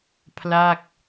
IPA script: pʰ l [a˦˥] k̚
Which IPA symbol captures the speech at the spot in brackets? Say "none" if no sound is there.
a˥˩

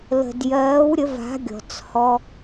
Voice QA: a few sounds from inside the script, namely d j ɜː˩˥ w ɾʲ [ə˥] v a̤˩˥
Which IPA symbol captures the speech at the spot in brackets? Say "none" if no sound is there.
ə˩˥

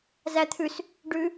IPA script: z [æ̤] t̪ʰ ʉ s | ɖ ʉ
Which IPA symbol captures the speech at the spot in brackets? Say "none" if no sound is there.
æ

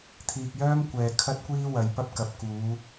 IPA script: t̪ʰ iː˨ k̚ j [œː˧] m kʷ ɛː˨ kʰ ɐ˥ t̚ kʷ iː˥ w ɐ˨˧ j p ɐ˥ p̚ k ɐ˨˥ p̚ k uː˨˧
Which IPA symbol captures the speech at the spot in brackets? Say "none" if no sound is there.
œː˥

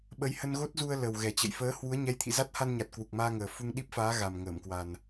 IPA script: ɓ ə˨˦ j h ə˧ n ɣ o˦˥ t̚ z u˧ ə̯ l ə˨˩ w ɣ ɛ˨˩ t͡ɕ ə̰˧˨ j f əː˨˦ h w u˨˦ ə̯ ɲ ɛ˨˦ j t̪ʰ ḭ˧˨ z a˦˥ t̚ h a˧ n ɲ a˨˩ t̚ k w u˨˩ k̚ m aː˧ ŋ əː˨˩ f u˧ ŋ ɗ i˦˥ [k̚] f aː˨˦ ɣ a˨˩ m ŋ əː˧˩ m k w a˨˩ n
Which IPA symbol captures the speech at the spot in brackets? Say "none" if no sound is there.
p̚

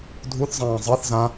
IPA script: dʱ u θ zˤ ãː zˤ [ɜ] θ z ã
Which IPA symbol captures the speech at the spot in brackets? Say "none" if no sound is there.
ɜ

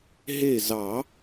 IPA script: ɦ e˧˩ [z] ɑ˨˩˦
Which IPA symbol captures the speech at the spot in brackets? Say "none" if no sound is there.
z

